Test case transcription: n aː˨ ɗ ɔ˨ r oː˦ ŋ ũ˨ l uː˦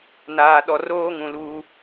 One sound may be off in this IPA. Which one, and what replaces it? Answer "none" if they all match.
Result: none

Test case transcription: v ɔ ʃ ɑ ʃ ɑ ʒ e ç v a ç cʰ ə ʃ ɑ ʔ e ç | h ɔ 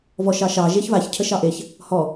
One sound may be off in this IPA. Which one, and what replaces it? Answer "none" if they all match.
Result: none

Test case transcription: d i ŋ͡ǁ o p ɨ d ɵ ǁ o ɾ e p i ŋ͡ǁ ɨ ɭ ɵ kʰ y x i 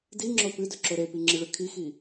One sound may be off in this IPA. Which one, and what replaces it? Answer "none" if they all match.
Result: y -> i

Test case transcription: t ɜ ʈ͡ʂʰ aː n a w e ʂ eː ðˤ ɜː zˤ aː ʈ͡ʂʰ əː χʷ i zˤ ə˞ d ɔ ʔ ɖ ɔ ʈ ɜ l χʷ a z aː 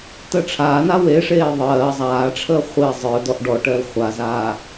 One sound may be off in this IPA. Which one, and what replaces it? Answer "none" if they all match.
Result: none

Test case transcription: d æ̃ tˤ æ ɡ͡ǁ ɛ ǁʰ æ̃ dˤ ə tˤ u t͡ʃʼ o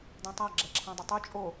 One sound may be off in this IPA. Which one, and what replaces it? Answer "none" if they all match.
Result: none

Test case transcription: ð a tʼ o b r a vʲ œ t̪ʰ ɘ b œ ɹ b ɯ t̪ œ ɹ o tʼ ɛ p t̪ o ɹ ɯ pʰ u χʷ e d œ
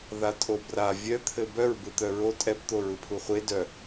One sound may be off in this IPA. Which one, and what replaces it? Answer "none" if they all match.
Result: none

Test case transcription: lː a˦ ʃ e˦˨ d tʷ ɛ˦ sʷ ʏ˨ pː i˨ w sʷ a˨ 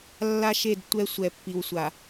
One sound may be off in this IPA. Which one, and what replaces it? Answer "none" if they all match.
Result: ʏ˨ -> ɛ˨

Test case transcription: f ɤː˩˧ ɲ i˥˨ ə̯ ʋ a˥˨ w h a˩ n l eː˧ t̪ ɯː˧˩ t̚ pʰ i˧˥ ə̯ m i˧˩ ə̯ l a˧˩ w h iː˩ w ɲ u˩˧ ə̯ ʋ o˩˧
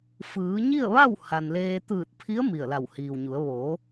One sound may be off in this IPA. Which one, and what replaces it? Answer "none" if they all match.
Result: ɤː˩˧ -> ɯː˩˧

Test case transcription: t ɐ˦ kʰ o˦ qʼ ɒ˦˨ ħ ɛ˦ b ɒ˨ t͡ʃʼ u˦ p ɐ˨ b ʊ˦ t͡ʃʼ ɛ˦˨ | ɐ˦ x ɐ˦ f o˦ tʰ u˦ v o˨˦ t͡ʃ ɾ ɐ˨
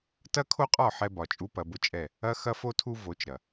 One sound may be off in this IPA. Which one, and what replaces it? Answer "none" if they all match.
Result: none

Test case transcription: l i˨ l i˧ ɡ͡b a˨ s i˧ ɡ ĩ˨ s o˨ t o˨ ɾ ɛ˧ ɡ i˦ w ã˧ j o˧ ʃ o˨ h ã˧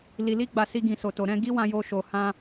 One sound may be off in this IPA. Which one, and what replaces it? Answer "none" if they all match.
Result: ɛ˧ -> ɛ̃˧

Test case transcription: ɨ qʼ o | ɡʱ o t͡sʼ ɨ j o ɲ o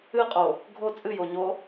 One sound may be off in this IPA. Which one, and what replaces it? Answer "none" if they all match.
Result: none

